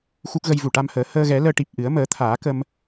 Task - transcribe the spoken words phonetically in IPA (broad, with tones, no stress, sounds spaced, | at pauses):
x u˦˥ k̚ ɣ ə˧ j v u˨˩ ʈ a˧ m h əː˨˩˦ h əː˧ ɣ ɛ˨˩˦ l əː˧ ʈ i˨˩ p̚ ʔ ɨ˨˩˦ ə̯ m əː˨˩˦ t̪ʰ aː˨˩˦ k ə˧ m